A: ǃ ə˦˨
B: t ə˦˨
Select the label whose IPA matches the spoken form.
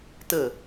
B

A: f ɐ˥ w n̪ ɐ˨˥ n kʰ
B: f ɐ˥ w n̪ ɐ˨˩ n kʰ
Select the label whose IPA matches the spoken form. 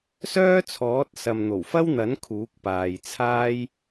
A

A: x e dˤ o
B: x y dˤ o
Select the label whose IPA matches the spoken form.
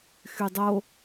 B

